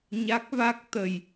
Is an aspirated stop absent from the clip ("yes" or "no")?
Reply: yes